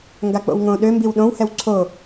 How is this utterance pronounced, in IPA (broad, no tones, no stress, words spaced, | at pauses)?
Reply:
ŋɡak͡po̰wŋõ ɗø mbiwɗõw hɛwǀʰo